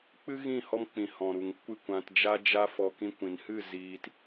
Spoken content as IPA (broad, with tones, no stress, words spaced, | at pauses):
k͡pɨ˦ɣĩ˦˨hɔ˧mk͡pĩ˨ hɔ̃˨ɾu˨ŋ kʷɨ˦˨kʷã˧td͡ʒa˦d͡ʒa˦ fɔ˧ kĩ˧kʷĩ˨nhɨ˦˨ ziː˧t